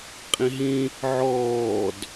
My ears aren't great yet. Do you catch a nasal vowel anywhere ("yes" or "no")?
yes